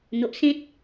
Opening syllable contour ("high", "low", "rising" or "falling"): low